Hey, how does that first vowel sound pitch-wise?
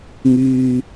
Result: high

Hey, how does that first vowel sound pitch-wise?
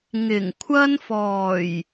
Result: low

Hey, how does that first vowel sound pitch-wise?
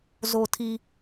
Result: low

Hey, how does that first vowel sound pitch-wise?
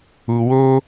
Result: low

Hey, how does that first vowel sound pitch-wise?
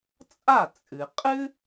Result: falling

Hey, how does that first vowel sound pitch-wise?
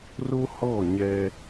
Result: high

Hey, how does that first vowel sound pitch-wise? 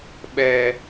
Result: low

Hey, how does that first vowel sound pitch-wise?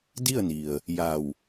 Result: falling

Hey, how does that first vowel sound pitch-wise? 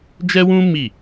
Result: high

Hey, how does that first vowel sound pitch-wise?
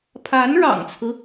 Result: rising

